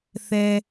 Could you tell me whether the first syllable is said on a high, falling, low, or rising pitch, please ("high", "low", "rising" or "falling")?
high